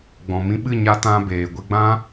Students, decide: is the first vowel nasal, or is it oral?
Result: nasal